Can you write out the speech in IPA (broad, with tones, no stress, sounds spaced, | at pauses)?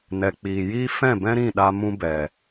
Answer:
n ɛ˨ k͡p iː˨ j iː˦ f ɛ̃˦˨ b ɛ̃˦ ɾ ĩ˦˨ ɗ a˧ m ũ˧ b ɛ˨